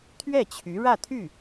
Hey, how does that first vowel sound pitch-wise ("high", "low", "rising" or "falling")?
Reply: falling